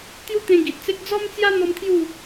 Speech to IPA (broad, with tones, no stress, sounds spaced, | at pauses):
t̪ j u˦ t̪ ẽ˧ ɡ i˨ t̚ t͡s e˦ k̚ d͡z ɔ˦ m t͡s j a˦ n̪ ɔ˦ m t̪ʰ j u˥˧